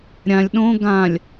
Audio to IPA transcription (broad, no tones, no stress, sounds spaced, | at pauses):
ɾʲ ã lʲ ɗ õ ɡ ã lʲ